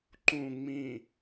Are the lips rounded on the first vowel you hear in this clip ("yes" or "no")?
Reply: yes